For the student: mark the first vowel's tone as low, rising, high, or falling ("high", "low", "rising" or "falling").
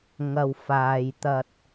low